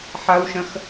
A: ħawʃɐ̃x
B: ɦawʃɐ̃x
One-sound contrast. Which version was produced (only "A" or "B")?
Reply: A